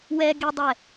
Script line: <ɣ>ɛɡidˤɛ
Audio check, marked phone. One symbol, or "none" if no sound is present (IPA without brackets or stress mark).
w